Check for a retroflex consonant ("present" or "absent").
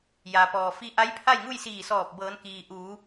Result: absent